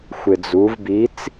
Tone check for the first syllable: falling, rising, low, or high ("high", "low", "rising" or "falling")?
low